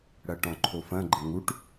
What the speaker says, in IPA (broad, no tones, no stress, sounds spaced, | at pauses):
ɽ ɐ ʈ ɔ̃ ǃʰ o f ɐ̃ ɡ͡ǃ ə ŋ u ʈ